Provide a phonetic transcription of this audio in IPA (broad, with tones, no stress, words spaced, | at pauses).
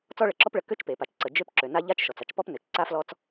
t͡sɔ˥ɭə˩ǁɔ˥pɭə˩ kø˥t͡ʃpe˩ pa˩t͡ʃǀə˩ d͡ʒø˥p ǁø˩na˥ ʎa˥t͡ʃʃɔ˩t͡s a˥t͡ʃpɔ˥pnø˩t͡ʃ ǀa˥flɔ˥t͡s